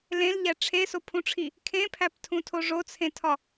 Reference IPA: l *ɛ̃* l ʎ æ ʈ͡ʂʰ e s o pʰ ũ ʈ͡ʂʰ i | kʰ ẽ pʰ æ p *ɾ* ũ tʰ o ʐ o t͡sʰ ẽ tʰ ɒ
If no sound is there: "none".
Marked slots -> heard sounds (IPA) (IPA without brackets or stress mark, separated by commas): ẽ, tʰ